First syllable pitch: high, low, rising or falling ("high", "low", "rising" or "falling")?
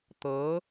rising